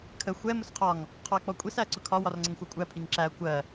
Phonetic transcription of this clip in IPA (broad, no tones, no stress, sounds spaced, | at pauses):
kʰ ə xʷ ɛ m ʊ s qʰ ɒ ŋ | qʰ ɔ ɐ̯ k͡p ɔ kʷʼ i s æ ɐ̯ ǀ ʊ kʰ ɒ w ɒ r ŋ͡ǀ ə ŋ xʷ ɑ kʷʼ æ pʰ i ŋ ǁ æ ɐ̯ kʷ ɜ